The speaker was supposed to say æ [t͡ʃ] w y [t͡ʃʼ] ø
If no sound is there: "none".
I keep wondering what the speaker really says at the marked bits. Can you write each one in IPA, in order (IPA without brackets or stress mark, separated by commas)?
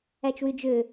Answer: t͡ʃ, d͡ʒ